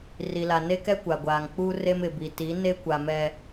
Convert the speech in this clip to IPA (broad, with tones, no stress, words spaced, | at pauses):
ri˨la˨ ne˦kɛ˦ kʷa˨ɡʷaː˨ŋ k͡pu˦ re˦mɪ˨bi˨ ti˨˦ne˦ kʷa˨mɛ˨